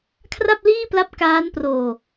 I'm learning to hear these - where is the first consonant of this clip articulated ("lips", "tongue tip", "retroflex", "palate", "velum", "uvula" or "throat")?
velum